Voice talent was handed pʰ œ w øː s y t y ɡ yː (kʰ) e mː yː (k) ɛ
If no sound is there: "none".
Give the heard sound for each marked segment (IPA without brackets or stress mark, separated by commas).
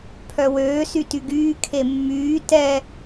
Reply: kʰ, t